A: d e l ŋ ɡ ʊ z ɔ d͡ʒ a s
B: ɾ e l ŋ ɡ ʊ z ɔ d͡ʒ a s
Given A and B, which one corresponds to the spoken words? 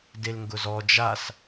A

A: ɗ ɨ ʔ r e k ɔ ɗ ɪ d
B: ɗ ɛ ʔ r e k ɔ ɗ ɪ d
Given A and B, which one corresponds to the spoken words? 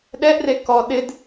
B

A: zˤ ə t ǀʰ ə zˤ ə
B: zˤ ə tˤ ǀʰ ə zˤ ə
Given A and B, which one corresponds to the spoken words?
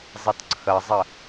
A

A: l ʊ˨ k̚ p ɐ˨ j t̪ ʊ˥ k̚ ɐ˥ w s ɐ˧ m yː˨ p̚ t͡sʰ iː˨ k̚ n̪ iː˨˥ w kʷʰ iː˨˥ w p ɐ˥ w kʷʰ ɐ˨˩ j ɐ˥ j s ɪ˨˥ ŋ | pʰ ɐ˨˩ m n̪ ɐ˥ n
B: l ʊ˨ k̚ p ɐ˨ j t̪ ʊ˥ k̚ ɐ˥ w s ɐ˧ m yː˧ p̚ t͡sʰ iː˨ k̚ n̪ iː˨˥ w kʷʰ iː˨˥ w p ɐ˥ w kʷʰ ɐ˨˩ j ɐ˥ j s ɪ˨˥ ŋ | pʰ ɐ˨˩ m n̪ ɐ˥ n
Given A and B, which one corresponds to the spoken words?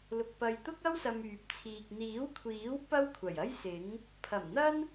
A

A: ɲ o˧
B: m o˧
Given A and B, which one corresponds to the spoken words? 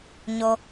A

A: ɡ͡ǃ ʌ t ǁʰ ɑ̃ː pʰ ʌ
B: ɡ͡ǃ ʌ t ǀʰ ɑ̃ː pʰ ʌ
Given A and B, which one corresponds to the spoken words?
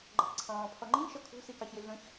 B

